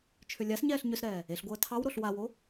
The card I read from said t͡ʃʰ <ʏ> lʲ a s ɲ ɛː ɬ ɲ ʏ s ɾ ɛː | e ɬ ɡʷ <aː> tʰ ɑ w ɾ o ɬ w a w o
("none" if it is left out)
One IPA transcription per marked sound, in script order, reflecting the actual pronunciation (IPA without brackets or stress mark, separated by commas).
ʏ, əː